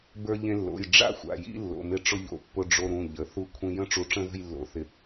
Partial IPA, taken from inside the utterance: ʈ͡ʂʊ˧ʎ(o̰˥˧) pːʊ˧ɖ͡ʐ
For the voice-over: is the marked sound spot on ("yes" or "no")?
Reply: no